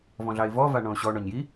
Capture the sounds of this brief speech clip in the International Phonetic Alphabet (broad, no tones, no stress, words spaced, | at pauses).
vɔ̃ɮɑɪ̯vɔ vaɳɔ̃ʊ̯ɕɔ ɳɔɲji